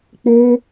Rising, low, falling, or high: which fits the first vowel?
high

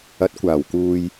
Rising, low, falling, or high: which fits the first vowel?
rising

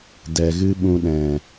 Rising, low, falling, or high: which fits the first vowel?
low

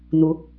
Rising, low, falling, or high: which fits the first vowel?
rising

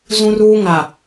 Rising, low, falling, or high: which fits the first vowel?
high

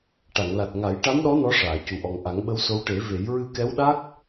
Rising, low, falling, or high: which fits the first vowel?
low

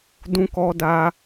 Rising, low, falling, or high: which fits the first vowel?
high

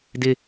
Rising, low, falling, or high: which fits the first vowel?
high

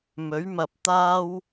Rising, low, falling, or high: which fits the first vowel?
rising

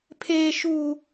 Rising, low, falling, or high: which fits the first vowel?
high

